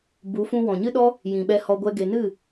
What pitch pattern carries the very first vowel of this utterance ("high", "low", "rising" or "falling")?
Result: rising